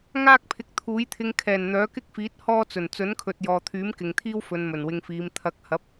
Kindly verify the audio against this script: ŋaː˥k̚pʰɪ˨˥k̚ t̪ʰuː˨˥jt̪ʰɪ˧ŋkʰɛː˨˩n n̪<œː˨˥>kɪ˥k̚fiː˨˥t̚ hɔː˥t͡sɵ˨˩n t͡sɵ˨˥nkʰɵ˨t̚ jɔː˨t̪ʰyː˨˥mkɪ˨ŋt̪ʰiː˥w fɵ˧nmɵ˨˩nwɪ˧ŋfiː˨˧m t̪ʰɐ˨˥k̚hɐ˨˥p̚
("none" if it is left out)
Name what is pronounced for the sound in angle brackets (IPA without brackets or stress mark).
œː˨˥